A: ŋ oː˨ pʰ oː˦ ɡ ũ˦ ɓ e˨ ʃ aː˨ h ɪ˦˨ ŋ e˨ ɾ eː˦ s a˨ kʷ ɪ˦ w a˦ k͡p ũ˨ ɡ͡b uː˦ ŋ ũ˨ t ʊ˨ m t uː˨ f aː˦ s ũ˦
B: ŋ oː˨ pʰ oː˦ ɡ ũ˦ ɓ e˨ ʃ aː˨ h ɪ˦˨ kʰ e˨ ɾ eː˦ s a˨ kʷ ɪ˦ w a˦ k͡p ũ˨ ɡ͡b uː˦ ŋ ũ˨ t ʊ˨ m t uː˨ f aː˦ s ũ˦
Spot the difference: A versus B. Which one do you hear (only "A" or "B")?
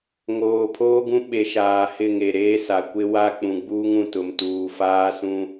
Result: A